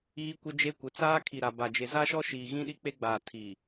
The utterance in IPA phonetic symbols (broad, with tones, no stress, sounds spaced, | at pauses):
iː˦ kʷ ɪ˦ d͡ʒ e˦ kʷ ɪ˨˦ t͡s aː˦ kʰ i˨ ɾ a˨ b a˨ d͡ʒ e˨ z a˦ ʃ ɔ˦ ʃ iː˨ ɣ ĩ˦ ɗ i˦ k͡p e˦ ɡ͡b aː˨ tʰ i˨